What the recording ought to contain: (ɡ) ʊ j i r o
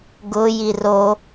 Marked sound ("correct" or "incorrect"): correct